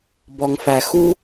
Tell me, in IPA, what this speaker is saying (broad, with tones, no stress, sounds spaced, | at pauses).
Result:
b ɔ˨ ŋ f æ˨ x u˧